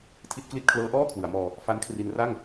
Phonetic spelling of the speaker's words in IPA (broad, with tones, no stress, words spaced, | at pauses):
tʰi˦˥t̚kli˦˥t̚ kʰlɤː˦˥ʔɔː˥˩kʰwɯ˩˦a̯mɔː˧ | fa˦˥nkʰri˧n ra˥˩ŋ